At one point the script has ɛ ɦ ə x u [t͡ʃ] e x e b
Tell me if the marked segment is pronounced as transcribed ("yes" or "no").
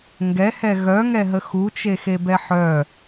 yes